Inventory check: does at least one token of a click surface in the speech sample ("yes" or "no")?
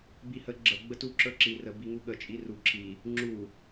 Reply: yes